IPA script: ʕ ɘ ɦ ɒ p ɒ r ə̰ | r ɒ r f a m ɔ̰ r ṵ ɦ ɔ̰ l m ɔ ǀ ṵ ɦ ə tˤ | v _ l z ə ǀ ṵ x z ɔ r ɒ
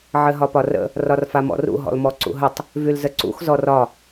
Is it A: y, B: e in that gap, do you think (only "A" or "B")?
A